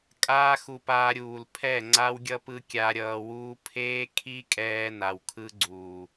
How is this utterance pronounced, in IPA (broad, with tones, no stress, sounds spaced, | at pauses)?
kʼ aː˦ x u˧ p aː˧ ɾʲ uː˨ l pʰ ɛ˦˨ ŋ͡ǀ a˦ w ɡʲ ʌ˦ p ɯ˧ kʲ a˧ ɾʲ ʌː˧ w uː˦ pʰ eː˦ kʰ i˦ kʼ ɛː˧ n a˨ w kʰ ɯ˦ ɡ͡ǀ uː˨